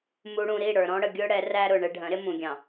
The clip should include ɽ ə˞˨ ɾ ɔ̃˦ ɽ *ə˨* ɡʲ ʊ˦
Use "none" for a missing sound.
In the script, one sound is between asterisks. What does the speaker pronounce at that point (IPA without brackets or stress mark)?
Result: ə˨